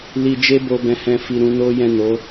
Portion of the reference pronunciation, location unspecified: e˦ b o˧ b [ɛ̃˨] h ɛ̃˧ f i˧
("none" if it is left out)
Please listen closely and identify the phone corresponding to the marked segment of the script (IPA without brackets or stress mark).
ɛ̃˦